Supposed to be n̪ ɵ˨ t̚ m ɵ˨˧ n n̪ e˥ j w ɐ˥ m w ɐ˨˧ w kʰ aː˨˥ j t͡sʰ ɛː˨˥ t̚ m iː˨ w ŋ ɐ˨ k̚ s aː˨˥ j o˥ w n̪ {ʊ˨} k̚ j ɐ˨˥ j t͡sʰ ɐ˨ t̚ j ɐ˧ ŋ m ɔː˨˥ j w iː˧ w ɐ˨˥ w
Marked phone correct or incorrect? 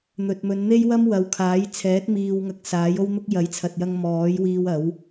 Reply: incorrect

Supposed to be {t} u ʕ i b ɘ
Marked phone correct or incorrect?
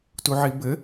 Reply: correct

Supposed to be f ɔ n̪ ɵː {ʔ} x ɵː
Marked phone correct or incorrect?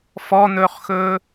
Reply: incorrect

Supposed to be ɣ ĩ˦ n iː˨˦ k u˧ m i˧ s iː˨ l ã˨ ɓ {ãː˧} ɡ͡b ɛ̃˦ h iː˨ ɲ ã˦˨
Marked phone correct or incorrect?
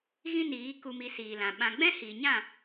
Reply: incorrect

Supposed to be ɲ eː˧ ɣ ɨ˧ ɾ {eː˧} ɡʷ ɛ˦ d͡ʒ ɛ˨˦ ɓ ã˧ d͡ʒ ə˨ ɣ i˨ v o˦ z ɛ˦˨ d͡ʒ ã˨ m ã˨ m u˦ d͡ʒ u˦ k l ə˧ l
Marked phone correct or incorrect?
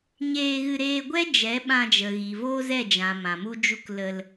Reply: correct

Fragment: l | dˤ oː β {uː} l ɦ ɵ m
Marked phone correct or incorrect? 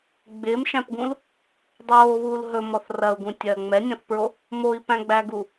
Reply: correct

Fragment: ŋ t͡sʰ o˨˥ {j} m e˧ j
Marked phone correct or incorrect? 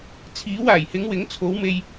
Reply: incorrect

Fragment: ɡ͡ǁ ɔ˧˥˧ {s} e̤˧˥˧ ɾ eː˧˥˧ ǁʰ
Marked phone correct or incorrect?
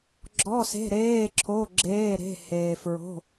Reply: correct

